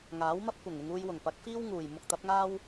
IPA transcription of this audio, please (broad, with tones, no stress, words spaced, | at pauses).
ŋaː˨˥wmɐ˥p̚kʷɐ˨˩ŋ ɪ˧ŋuː˧jwʊ˨˩ŋ pɐ˨˥k̚fiː˥wŋuː˨˩j mʊ˧k̚t̪ɐ˨˥p̚ŋaː˥w